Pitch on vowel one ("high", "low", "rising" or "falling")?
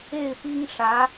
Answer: falling